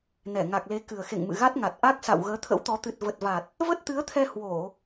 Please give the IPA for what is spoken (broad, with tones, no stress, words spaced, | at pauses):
nɛ˧˩ŋa˨˩k̚le˨˦ kɨ˨˩ə̯xḛ˧˨ŋ mɨ̰˧˨ɣa˦˥t̚ŋa˨˩t̚ ʔa˦˥k̚sa̰˧˨w ɣəː˨˦t̪ʰə̰˧˥wt̪ɔ˨˦ t̪ɨ˨˩t̚və˨˩t̚va˨˩t̚ | və˦˥t̚t̪ɨ˨˦ə̯t̪ʰɛ˧ hwo˧˩˨